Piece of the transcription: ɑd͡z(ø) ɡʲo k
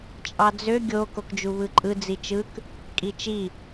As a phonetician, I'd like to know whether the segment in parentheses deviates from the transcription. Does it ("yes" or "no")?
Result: no